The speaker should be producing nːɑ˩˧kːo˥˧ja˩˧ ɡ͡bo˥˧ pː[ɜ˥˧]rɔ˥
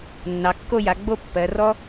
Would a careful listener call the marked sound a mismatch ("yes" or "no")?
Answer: yes